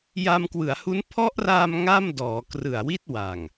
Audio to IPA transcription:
j a˧ m k w ɯ˩˦ a̯ h u˦˥ n pʰ ɔ˦˥ ʔ r aː˧ m ŋ a˥˩ m d ɔː˩˦ k r ɯ˨˩ a̯ w i˦˥ t̚ w a˨˩ ŋ

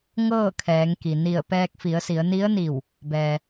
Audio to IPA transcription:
ŋ ɤː˥˨ kʰ ɛː˩˧ ŋ k i˩ n i˧˩ ə̯ p ɛː˧ k̚ f i˩˧ ə̯ s i˩˧ ə̯ n i˧˥ ə̯ n i˧˩ w | b ɛː˩

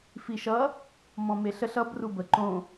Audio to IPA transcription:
f i ʃ ʌ | m ɔ̃ m e ɬ ə ɬ ʌ b r u b ə ǃ õ

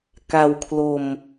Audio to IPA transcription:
k a˧ w kʰ l o˧ m

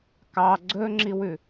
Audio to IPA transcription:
k ɑ ɡ͡ǀ ɵ ŋ͡ǁ i w ʉ

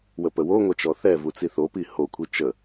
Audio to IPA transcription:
w ə p ə w o ŋʷ ɛ t͡ʃ ɔ θ ɛ v u t͡s i θ o p i h o kʷʰ i t͡ʃ ə

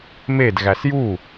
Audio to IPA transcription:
m e d ɣ æ s j u

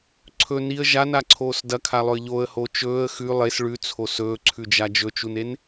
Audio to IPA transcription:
ǀʰ ɵ n i ə̯ ʒ a n a ǀʰ oː s d ɐ kʰ a lˠ ɵ ə̯ ʎ o ə̯ h o t͡ʃ ɵː ə̯ x ʉ lˠ e s ɭ ʉ t͡sʰ o s ɵː ǀʰ ʉ d͡ʒ a d͡ʒ ɵ t͡ʃ u n e n

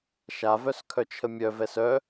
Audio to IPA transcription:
ʃ a v œ s kʰ œ t͡ʃʰ ə mʲ œ v ɛ s œ

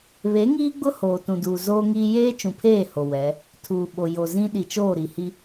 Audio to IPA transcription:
β e˨˦ ŋ iː˦ ɡ͡b ʊ˦ h oː˨ t ũ˨ d uː˨ z oː˦ ŋ iː˦ j eː˦ t͡ʃ ũ˨ pʰ eː˦˨ h o˨ w ɛ˨˦ | tʰ uː˨ ɓ o˨ j o˨ z ĩ˦ ɗ i˨ t͡ʃ oː˦˨ ɾ i˨ h i˦

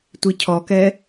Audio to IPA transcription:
tʷ i cʰ ɔ k ɛ

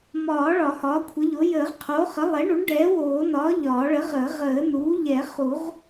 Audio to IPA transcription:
m ɒː˨˩˦ ɭ ɒ˨˩˦ h ɒː˩˥ kʷʰ ə˩˥ ʎ o˩˥ j əː˨˩˦ ʁ qʰ oː˩˥ χ ə˩˥ lˠ ɛ˩˥ ɳ u˩˥ ɳ ɖ ɛː˩˥ w oː˨˩˦ n ɒː˩˥ ʎ ɒː˨˩˦ ɭ ə˩˥ ʁ əː˨˩˦ ʁ əː˨˩˦ n uː˩˥ ʎ ɛ˨˩˦ χ u˨˩˦ ʁ

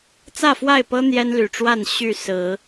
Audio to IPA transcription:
t͡s ä˥˨ f w a˥˨ ɪ̯ p ɤ˦ n̪ j ɛ˦ n l y˨˩ ʈ͡ʂ w a˥˨ n ɕ y˥˨ s ɹ̩˨˦

